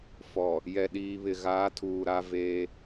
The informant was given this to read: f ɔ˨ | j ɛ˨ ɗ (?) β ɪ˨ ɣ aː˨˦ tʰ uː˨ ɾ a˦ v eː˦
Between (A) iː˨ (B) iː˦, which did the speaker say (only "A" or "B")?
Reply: A